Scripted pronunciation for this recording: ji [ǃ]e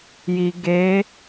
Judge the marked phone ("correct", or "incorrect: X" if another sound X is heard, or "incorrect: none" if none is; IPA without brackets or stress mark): incorrect: ɡ